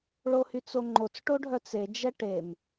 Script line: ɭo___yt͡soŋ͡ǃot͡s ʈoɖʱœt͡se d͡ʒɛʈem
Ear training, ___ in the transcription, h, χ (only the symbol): h